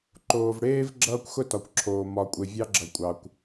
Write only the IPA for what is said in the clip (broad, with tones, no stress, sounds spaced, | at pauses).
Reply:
ǃ oː˨ v ɽ eː˦ v ɡ͡ǁ ʌː˦ kʷ x ʊ˦ t ɒ˨ kʷ ǁʰ oː˨ m ɒ˨ kʷʼ e˨ vʲ ɑ˦ ɡ͡ǁ ʌ˨ kʷʼ ɑ˨ kʷ